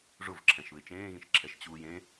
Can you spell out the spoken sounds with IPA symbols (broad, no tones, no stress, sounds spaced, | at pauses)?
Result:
ʐ ʊ v ǁʰ ɛ̃ ʃ β ɪ t͡ʃ ẽː ɣ ĩ ʃ ǁʰ ɛ ʃ t͡ɕ uː j ẽ